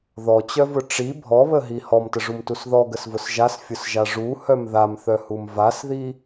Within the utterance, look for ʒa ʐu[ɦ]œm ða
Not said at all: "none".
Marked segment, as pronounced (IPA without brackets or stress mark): h